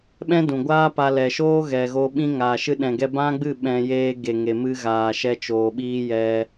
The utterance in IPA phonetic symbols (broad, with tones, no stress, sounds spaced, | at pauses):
ɓ ɛ̃˦ d ũ˨ ɡʷ aː˦ p a˧ l ɛ˨ ʃ oː˦ ɣ ɛ˨ ɣ o˧ ɓ ĩ˦ ŋ aː˨ ʃ ɨ˧ ɗ ɛ̃˨ ɡ ɛ˧ b ã˦ ɡ͡b ɨ˦˨ ɓ ɛ̃˧ j eː˧ ɡ e˨ ŋ e˨ m ɨ˧ ɣ aː˨ ʃ ɛ˧ t͡ʃ oː˨ ɓ iː˧ j ɛ˧